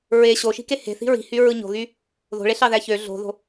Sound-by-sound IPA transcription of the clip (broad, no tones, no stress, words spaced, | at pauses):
ɹe ɕoʃi̤ke he̤θi̤ ɹi̤hyɹɯ ɲo̤ɣy | ðo̤ɭeɬɑðæ çø ɮo̤ðo̤